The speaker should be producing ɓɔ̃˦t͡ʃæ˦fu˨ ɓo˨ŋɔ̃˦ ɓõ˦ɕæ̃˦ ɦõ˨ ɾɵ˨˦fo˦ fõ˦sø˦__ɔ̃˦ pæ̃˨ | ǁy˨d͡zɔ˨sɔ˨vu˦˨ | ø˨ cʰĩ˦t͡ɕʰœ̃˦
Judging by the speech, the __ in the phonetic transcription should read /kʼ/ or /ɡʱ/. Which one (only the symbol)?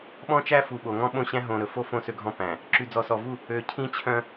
ɡʱ